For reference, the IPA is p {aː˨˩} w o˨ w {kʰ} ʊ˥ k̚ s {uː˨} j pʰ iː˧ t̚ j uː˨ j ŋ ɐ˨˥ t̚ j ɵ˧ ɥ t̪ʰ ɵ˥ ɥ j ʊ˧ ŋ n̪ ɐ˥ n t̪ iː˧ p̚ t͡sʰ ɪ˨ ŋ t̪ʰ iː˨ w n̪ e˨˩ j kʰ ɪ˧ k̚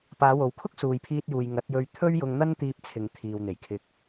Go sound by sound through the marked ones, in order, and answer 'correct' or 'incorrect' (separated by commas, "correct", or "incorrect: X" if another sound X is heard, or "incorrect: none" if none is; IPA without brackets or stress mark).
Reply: incorrect: aː˨˧, correct, correct